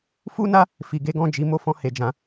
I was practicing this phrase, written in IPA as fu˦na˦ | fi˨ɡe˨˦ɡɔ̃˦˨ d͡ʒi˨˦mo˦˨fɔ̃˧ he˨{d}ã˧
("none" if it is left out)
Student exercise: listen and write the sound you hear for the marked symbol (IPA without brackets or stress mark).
d͡ʒ